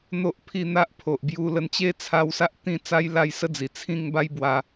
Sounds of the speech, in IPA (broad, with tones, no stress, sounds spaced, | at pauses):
n̪ o˦ ʔ pʰ i˥˧ n̪ a˦ ʔ pʰ o˨ ʔ b j u˧ l ə˧ n t͡ɕ e˦ t͡sʰ a˧ w s a˦ ʔ t̪ ĩ˥˧ t͡s a˦ j l a˥˧ j s ə˦ d͡z i˨˩ t͡sʰ ĩ˥˧ ŋ b a˦ j b w a˧